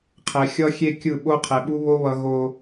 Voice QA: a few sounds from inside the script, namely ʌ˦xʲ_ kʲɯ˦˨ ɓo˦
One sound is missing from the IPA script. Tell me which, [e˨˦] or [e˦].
e˦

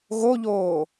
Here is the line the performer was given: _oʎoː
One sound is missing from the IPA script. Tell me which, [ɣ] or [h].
ɣ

